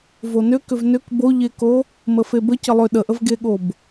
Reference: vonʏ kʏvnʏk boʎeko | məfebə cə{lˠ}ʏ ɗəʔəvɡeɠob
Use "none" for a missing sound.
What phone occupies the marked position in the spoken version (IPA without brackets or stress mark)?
lˠ